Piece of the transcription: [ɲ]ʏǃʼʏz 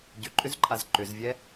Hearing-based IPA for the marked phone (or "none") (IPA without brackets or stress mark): ɟ